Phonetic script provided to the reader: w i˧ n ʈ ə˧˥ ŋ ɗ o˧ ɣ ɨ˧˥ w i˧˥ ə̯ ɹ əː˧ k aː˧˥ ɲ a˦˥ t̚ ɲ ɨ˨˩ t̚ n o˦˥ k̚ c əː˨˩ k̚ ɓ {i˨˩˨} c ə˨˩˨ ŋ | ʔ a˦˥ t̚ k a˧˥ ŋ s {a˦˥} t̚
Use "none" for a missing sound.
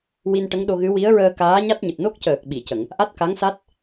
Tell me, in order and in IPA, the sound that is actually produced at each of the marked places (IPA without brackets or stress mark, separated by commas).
i˨˩˨, a˦˥